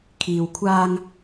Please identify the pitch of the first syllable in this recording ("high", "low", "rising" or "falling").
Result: low